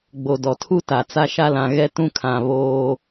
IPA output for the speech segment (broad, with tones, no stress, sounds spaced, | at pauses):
ɡ͡b o˨ d ɔ˨ tʰ u˦ t a˨ t͡s a˦ ʃ a˦ l ã˨ ɣ ɛ˦ t ũ˦ kʰ ã˨ β oː˦